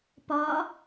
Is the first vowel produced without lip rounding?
no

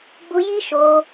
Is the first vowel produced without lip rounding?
no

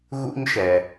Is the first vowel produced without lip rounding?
no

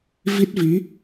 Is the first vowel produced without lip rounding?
yes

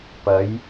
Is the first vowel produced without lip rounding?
yes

